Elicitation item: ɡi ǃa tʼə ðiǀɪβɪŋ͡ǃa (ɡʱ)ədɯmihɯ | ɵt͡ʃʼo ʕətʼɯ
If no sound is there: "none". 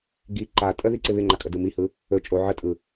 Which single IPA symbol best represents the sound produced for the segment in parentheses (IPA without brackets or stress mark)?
kʼ